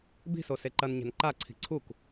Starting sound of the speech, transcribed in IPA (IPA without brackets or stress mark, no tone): b